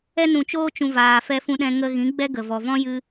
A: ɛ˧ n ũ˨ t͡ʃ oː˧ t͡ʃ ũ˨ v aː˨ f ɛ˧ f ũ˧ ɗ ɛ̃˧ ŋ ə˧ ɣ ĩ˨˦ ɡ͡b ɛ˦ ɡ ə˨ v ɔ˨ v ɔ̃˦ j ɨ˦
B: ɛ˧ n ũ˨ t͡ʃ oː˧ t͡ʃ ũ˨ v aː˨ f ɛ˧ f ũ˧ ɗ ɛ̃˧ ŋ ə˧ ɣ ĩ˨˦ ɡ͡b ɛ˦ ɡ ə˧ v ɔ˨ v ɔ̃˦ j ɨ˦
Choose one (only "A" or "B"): A